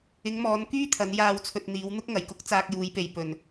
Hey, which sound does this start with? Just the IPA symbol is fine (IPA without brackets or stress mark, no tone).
ɪ